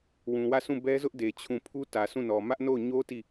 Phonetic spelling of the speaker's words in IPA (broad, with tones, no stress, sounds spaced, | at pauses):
w ũ˨ w ä˦˨ sʰ ũ˦˨ b ɛ˦ z ʊ˦ ʔ d e˨ t͡ɕʰ ũ˦˨ pʰ u˦ t ä˨ s ũ˦˨ n ɔ˨ m ä˦ ʔ n o˦˨ ʊ̯ ɲ o˦ t i˦˨